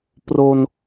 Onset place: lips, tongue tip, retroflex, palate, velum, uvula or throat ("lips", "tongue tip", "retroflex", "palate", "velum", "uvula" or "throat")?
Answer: lips